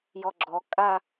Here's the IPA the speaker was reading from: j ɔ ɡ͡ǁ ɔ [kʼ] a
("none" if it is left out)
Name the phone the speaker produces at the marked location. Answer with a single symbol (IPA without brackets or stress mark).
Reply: kʼ